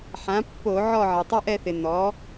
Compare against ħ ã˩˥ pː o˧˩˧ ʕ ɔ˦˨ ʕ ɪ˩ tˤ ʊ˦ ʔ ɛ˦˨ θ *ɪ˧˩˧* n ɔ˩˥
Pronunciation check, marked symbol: incorrect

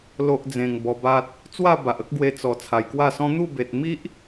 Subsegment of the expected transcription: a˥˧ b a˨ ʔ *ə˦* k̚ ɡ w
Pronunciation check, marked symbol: correct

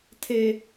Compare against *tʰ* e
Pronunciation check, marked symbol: correct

